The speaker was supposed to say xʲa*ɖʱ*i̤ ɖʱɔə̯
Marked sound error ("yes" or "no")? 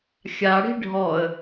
yes